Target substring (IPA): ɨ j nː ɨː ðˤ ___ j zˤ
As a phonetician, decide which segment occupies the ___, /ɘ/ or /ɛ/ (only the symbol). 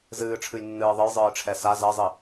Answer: ɘ